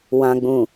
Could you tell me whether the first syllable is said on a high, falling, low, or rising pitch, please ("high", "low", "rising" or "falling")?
low